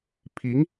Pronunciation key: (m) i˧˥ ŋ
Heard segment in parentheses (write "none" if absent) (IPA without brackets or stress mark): pʰ